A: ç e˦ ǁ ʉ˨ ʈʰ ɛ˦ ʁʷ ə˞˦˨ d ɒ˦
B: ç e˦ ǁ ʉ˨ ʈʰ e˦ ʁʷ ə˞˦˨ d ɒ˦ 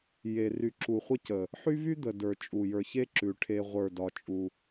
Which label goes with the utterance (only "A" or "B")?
B